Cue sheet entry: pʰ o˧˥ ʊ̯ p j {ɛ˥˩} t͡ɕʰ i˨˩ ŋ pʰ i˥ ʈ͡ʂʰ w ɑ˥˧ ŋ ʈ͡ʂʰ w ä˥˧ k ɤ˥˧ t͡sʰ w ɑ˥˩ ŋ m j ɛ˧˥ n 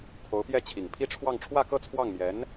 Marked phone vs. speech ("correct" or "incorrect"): correct